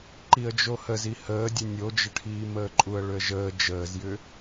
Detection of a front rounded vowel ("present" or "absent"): present